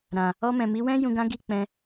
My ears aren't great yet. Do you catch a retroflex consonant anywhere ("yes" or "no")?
no